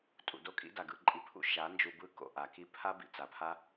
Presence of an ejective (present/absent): present